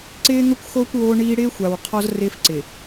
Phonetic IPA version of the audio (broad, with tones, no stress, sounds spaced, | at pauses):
ǀ ɪː˦ ŋ ʊ˦ kʷ x oː˦ kʷ w oː˦ ɳ iː˦ ɽ ɪː˦ xʷ a˨ w qʰ ɔ˦ z r ɪː˦ f ǀ ɪː˨